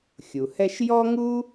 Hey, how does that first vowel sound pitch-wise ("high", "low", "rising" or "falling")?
low